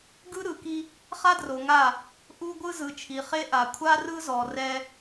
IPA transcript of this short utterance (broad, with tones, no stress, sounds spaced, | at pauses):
ɡ ɯ˦ ɾ ɯ˨ k i˦ | χ a˦ d r o˨ ŋ a˦˨ | ʔ u˦ ɡʷ ɯ˦ z ɯ˨ t͡ʃʰ i˨ χ e˦ ʔ a˨ kʷʰ a˦ r ɯ˦ z ɔ˨ r ɛ˦